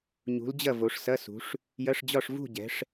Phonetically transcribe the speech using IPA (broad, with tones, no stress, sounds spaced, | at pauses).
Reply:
ɲ ṳ˨˦ l d͡ʑ ɐ˥˨ v o˨˦ ʂ s ɐ˧˥˧ s ṳ˨˦ ʂ | j ɐ˧˥˧ ʂ d͡ʑ ɒ˥˨ ʂ v ṳ˥˨ ɟ ɛ̤˨˦ ʂ